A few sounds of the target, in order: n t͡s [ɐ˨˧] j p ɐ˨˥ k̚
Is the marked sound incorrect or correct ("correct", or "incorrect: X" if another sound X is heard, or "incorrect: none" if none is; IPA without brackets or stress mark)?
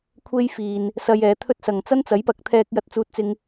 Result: incorrect: ɐ˨˥